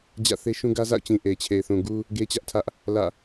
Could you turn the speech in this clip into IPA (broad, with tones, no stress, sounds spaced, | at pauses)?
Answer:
d͡ʑ ä̰˦˨ θ e˦ ʃ ũ˦ ɡ ä˦ z a̰˦˨ ʊ̯ t͡ɕ ĩ˨ ʔ e˨ ɪ̯ t͡ɕʰ e˨ ɪ̯ θ ũ˨ ɡ u˦ | ɡ e˦ t͡ɕ ä˦ ʔ tʰ ä˦ ʔ | l ä̰˦˨